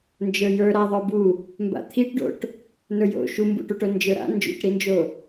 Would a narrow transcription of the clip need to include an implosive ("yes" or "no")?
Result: no